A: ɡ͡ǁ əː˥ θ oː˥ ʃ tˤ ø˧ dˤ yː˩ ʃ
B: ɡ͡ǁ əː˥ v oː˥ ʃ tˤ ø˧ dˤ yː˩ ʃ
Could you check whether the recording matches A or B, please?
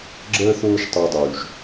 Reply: A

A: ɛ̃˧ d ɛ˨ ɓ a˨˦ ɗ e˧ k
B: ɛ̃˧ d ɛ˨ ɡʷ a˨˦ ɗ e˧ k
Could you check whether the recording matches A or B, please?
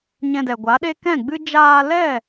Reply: B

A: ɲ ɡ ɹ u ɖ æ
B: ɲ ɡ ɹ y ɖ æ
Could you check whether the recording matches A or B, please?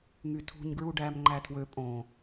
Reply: A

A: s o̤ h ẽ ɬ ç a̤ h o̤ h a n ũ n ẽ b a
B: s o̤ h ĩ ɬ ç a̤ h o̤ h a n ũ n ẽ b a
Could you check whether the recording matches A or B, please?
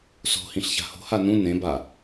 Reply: B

